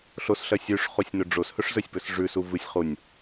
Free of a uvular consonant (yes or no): no